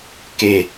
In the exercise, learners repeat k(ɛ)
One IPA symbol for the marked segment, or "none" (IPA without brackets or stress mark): e